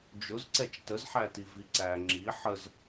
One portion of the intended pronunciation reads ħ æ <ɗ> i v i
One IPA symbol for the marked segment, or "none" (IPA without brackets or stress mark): t